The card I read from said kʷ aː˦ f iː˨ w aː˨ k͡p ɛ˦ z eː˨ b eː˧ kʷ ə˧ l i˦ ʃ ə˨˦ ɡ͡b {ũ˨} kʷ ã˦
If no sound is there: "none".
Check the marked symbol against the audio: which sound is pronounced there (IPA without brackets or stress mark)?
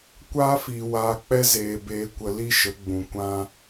ũ˨